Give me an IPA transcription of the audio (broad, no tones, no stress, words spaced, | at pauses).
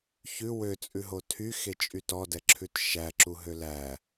çʉ wøt͡sʼʉɦo tʰyxet͡ʃʼy tɔdɛǁʰʉt ʃæǁuɦø læ